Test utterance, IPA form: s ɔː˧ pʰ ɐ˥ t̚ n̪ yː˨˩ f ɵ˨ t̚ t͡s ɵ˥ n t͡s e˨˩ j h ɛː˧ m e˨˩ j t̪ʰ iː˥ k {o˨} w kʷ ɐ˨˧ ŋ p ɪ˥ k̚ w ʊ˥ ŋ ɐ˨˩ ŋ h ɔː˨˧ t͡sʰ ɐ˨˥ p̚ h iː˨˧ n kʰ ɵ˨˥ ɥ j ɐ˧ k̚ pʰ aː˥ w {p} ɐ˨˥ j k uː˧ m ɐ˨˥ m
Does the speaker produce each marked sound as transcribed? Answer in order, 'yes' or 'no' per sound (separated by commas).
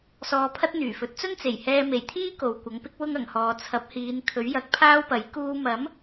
yes, yes